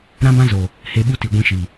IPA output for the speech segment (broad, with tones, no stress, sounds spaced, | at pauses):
ɾ ã˦ b ã˦ z o˨ | h e˧ ɓ u˦ t i˨ ɡʷ ĩ˧ ʃ i˨